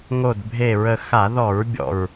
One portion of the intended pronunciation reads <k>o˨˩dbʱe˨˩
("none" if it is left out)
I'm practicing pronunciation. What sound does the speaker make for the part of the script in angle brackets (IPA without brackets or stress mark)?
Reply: ŋ